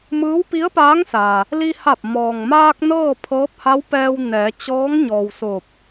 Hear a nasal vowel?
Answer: no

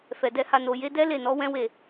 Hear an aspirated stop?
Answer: no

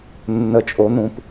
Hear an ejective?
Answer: yes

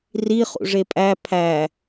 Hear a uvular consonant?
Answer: yes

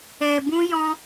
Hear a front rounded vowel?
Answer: no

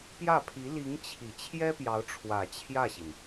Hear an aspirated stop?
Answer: yes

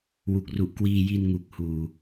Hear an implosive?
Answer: no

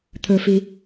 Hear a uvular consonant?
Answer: no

